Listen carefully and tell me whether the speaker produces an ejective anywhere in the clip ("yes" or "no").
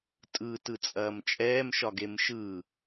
yes